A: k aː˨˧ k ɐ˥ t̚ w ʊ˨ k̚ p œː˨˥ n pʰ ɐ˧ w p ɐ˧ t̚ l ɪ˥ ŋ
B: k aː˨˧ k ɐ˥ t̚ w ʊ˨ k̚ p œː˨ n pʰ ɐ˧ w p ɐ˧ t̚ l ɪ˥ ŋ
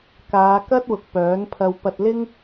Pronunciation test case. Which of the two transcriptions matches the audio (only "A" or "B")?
A